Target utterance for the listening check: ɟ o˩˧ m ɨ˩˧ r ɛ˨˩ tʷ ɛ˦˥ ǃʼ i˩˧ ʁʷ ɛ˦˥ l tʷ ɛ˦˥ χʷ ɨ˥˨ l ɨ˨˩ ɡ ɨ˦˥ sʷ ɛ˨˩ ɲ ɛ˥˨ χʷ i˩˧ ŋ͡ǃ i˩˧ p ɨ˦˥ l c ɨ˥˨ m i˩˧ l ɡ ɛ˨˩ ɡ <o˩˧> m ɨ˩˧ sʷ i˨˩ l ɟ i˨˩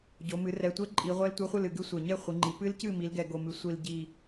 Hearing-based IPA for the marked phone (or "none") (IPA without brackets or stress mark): o˨˩